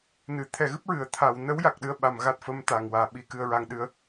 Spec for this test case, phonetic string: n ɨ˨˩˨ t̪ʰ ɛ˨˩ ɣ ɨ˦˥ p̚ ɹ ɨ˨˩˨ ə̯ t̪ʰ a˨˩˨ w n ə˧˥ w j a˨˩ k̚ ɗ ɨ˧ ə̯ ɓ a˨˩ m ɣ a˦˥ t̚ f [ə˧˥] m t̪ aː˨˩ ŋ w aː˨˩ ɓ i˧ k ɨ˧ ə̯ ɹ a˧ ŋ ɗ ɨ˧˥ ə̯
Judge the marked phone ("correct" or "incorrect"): correct